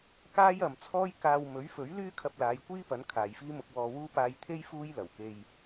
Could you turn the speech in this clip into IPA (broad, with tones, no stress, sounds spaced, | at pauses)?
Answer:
k aː˥ j ɐ˨ m t͡sʰ ɔː˥ j k aː˧ w m ɵ˨˥ ɥ f ɵ˨˥ ɥ l yː˥ kʰ ɐ˧ p̚ l aː˨˧ j kʷ iː˥ p ɐ˨˥ n kʰ aː˨ j f iː˥ m ʊ˧ k̚ w ɔː˧ w uː˥ p aː˧ j t̪ʰ e˥ j f uː˥ j l ɐ˨˩ w k e˧ j